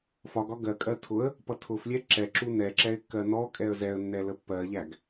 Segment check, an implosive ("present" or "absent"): absent